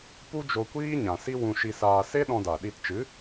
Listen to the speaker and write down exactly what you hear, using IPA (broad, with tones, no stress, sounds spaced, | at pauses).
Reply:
p u˦ d͡ʒ o˧ kʷ iː˦ ɲ ã˨ s i˦ w ũ˧ ʃ i˧ s aː˧ s e˦ ɗ ɔ̃˧ d a˨ ɗ i˧ t t͡ʃ ɨ˨˦